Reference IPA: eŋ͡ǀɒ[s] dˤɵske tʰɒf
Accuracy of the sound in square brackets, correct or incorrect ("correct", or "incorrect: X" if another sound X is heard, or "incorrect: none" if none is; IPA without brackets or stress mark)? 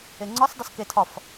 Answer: correct